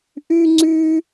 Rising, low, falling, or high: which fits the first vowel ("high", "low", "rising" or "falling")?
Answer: high